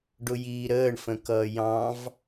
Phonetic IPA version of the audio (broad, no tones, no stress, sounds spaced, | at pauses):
ɖ ʊ j iː ɾ əː ɳ f ə̃ k ʌː j ɑ̃ v